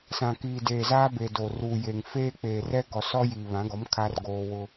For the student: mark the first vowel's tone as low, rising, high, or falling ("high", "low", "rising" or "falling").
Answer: low